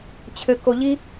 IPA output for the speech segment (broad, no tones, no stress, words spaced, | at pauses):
t͡ɕʰɘko ʎi